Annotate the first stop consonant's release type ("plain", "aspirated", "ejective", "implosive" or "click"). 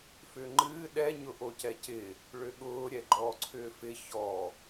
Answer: click